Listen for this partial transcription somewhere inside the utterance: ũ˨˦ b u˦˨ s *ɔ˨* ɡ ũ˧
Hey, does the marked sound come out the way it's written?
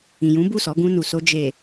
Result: no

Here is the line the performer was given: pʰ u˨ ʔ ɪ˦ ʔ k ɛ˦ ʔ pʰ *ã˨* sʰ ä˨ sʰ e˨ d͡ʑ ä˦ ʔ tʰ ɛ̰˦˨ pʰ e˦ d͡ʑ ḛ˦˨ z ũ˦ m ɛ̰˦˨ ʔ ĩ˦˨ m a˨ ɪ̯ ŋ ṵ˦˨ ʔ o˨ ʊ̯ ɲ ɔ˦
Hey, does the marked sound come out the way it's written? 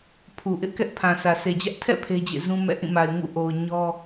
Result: yes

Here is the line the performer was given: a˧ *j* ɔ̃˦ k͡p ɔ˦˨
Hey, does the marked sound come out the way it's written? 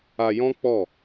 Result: yes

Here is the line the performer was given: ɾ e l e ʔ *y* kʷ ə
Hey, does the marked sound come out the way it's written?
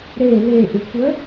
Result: no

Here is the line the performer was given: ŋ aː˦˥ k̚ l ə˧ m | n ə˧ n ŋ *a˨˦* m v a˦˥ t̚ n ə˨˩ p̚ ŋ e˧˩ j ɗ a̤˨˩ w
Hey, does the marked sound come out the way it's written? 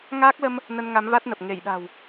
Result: yes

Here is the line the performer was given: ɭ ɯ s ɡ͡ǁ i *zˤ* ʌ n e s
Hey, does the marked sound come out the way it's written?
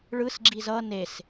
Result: no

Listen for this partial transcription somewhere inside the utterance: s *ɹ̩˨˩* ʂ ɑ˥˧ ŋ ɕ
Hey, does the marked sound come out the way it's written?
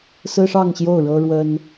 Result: no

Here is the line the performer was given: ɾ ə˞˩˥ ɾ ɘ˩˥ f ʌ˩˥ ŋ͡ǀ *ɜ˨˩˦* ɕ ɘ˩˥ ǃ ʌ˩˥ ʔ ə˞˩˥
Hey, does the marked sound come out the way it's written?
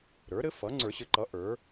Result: no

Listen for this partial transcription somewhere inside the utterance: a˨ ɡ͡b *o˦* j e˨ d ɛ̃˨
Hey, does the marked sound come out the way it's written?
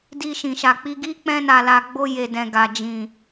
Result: no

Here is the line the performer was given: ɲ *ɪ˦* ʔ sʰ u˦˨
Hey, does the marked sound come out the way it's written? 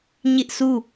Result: yes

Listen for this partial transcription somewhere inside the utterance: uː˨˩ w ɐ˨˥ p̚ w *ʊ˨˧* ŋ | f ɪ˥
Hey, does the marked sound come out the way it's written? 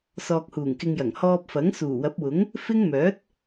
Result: no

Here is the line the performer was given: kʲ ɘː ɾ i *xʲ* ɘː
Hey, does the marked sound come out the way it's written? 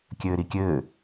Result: no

